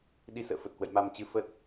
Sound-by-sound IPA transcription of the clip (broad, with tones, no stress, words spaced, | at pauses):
ɗi˨˦sə̰ː˧˨ fə˨˩t̚hwə̰˧˨jma˧mt͡ɕɨ˧ fə˦˥t̚